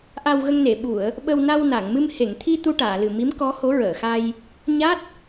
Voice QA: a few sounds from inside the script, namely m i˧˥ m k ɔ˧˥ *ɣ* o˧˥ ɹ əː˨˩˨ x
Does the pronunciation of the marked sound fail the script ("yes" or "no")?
yes